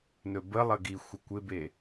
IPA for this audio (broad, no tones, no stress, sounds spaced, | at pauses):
n ɵ b ə lˠ ə ɡ i xʷ ə kʷ ɪ b e